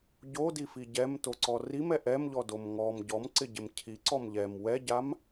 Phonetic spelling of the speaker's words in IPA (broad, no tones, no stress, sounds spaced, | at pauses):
ɟ o d i f i ɟ ɛ m t o ǀ ɔ r i m ɛ ʔ ɛ m ʎ ɔ d o m ŋ ɔ m ɟ ɔ m ǀ ɪ ɟ ɪ m cʰ i ǀ ɔ m ʎ ɛ m w ɛ ɟ a m